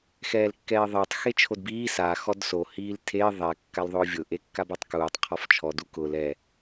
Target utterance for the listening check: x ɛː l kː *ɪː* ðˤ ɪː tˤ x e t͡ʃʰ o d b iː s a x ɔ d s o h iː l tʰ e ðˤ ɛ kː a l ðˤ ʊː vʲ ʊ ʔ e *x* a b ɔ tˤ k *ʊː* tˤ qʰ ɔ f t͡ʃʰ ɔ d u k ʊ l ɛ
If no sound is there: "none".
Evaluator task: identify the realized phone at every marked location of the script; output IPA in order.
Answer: ɛː, kː, uː

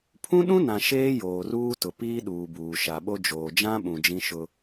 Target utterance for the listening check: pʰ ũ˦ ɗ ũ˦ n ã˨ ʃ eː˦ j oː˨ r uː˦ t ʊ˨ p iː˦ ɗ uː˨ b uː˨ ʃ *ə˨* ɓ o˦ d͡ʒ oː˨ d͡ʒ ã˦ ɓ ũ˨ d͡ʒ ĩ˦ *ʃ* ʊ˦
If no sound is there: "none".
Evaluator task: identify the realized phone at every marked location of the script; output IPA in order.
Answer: a˨, ʃ

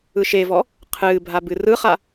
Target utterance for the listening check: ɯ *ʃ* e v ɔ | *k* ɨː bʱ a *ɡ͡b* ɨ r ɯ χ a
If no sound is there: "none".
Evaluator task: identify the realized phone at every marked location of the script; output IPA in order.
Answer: ʃ, qʰ, b

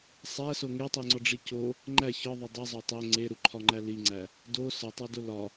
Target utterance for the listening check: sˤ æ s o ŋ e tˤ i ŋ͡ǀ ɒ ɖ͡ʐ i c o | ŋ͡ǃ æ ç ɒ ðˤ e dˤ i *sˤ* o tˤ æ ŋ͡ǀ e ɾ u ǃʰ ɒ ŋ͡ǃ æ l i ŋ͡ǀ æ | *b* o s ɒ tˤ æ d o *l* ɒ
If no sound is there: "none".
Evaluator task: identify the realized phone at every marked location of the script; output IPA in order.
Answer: zˤ, d, l

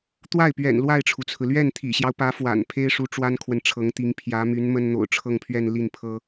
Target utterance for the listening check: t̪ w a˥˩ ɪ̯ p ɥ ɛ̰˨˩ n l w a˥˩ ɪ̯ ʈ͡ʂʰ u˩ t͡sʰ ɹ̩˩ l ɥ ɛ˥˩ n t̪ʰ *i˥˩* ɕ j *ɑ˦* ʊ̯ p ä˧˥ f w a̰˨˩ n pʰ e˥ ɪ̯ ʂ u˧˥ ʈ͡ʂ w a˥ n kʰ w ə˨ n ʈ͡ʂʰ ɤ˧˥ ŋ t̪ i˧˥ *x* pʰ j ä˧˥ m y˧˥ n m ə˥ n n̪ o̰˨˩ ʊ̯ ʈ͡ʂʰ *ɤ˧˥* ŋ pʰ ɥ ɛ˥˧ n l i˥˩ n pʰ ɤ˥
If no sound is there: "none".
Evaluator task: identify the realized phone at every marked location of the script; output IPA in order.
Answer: ḭ˨˩, ɑ˦, ŋ, ɤ˥˧

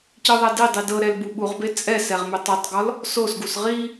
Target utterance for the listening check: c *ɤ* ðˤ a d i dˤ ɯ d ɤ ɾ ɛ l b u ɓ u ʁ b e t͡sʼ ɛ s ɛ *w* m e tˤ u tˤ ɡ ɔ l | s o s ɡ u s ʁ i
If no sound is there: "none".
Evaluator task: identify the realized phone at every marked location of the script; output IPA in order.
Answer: ɯ, ʁ

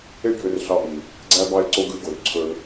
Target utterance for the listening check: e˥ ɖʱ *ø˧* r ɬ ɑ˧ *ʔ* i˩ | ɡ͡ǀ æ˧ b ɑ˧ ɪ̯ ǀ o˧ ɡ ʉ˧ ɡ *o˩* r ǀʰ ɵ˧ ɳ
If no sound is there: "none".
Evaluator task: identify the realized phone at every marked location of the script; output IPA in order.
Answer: ø˧, ʔ, o˩

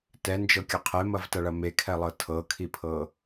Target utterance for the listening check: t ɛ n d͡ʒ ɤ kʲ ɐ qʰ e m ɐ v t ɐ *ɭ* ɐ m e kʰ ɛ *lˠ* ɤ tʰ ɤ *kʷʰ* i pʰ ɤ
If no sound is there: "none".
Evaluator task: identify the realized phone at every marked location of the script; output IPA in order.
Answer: ɭ, lˠ, kʰ

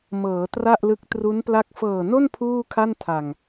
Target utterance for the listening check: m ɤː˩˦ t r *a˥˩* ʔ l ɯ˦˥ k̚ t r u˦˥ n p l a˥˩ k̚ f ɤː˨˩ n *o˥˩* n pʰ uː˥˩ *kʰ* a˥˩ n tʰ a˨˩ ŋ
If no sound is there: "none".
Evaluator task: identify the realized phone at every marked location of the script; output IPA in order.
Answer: a˥˩, o˥˩, kʰ

